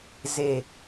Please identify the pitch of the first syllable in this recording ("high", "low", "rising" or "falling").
low